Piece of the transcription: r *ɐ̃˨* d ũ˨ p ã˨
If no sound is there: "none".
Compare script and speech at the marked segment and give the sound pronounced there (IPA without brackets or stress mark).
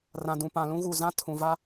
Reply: ã˨